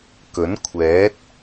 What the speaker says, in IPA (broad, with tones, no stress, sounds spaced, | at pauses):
k ɵ˨˥ n kʷʰ ɛː˨˥ t̚